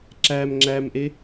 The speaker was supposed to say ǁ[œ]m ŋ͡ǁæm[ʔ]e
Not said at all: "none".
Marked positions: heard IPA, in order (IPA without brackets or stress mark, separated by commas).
æ, ʔ